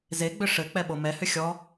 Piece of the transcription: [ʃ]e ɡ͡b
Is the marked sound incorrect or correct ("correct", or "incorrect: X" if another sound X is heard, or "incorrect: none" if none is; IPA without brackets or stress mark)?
incorrect: z